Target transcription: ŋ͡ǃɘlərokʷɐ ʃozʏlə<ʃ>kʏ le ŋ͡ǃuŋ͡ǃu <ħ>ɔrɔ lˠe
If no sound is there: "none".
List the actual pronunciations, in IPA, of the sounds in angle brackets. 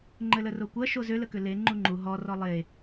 none, ɦ

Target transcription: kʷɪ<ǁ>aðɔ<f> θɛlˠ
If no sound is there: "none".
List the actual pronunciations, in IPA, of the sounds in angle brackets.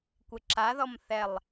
ǁ, m

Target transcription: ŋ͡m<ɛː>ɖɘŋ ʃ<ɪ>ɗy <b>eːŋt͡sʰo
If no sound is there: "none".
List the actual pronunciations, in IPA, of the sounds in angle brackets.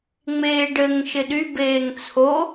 eː, ɪ, b

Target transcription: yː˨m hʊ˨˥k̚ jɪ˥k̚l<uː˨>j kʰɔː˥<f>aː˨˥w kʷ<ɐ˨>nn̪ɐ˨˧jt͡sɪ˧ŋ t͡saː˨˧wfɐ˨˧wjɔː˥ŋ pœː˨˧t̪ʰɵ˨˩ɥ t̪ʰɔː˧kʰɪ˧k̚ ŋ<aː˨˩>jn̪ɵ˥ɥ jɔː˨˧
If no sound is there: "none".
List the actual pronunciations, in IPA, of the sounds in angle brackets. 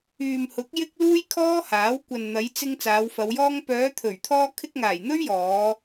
uː˥, h, ɐ˨, aː˨˩

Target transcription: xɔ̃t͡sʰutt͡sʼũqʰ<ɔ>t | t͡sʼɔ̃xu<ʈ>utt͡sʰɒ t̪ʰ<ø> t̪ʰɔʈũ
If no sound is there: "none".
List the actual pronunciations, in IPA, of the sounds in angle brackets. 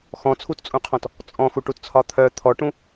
ɔ̃, ʈ, œ

